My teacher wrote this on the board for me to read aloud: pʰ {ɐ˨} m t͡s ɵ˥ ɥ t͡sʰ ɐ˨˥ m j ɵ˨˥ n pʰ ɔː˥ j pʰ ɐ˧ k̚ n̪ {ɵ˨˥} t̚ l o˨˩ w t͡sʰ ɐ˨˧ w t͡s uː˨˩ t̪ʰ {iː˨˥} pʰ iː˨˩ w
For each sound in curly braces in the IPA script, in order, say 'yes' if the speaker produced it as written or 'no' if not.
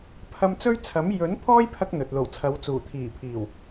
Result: no, no, no

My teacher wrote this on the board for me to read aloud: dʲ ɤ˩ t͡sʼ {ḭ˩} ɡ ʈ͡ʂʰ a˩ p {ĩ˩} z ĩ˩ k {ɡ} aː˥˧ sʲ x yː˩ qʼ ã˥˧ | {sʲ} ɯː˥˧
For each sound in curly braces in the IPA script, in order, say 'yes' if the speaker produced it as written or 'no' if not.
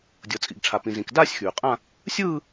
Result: yes, yes, no, yes

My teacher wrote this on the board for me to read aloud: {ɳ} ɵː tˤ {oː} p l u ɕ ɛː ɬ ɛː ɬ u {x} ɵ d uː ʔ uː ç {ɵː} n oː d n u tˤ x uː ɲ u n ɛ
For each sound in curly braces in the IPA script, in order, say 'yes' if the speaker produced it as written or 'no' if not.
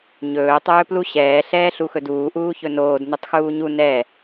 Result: no, no, yes, no

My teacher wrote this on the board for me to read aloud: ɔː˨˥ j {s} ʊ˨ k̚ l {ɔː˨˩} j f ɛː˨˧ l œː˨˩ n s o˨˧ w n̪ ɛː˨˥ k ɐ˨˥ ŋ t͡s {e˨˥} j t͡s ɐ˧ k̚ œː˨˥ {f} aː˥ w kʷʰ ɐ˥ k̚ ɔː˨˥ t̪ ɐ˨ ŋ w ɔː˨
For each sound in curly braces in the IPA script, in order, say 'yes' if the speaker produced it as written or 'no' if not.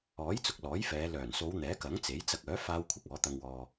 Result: no, no, yes, yes

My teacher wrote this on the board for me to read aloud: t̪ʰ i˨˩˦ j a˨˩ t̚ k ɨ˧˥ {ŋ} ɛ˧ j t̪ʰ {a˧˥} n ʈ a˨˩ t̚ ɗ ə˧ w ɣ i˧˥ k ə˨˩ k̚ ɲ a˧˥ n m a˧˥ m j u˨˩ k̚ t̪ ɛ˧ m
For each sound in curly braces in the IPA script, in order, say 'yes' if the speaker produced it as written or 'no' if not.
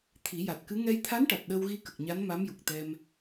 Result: yes, yes

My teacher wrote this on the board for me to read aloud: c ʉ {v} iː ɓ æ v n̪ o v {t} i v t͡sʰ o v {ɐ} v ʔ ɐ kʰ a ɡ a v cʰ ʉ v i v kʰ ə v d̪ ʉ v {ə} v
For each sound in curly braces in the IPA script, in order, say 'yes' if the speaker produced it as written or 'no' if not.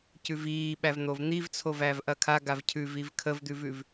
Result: yes, no, no, no

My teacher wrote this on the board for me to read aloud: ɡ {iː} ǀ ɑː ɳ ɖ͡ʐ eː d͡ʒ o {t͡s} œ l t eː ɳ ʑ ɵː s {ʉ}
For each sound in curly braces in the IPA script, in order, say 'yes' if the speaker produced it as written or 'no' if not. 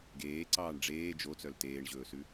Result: no, yes, yes

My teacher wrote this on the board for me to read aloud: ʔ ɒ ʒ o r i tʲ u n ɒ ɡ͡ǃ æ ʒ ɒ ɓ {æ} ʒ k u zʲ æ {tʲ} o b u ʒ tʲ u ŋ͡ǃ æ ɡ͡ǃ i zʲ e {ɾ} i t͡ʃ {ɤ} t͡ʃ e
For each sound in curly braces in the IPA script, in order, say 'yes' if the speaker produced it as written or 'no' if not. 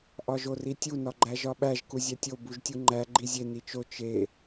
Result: yes, yes, no, no

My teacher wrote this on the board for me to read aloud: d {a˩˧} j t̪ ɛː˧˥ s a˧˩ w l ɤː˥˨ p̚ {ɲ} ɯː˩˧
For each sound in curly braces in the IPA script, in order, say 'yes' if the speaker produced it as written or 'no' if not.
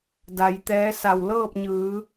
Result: yes, yes

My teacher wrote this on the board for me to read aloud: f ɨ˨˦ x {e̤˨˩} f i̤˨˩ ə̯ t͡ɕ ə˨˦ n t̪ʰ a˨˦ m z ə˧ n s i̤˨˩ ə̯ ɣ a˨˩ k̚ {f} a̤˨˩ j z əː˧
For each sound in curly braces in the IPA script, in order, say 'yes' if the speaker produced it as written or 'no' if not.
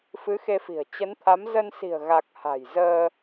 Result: no, no

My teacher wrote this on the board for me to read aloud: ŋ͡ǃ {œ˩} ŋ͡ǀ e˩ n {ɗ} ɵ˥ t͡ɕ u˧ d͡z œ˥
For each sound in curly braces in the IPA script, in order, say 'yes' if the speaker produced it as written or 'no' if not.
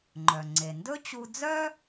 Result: yes, no

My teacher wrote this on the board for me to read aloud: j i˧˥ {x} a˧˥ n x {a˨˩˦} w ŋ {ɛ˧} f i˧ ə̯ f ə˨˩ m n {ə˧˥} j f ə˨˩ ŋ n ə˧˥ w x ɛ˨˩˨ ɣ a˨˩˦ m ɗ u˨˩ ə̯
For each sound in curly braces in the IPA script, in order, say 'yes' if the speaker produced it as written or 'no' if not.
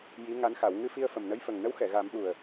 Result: no, yes, no, yes

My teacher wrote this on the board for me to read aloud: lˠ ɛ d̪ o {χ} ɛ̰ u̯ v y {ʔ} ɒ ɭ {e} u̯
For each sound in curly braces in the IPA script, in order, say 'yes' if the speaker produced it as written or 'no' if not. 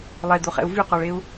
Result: yes, no, yes

